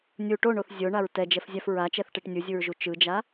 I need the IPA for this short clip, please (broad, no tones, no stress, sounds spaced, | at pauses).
nʲ u ʈ o ɳ o θ zʲ o ɳ a ɹ t ɛ d͡ʒ ɛ f zʲ a f ɹ a t͡ʃ ɛ θ ʈ e ʈ nʲ u zʲ u ɹ ʒ u t͡ʃ ɯ d͡ʒ a